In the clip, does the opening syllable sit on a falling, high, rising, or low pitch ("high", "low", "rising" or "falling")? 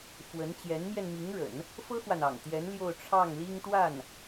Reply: rising